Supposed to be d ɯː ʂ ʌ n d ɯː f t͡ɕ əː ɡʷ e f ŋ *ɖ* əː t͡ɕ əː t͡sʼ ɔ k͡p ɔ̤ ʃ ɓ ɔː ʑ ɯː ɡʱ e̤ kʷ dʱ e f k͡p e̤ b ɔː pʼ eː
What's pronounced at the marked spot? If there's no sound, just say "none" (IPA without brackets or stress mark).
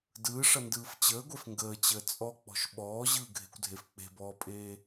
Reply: ɡ